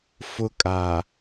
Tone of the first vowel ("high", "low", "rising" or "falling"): high